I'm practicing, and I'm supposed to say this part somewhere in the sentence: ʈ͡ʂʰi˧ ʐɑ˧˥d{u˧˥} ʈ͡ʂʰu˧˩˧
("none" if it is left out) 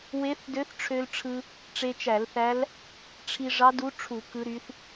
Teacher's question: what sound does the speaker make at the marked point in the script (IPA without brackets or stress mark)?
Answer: u˧˥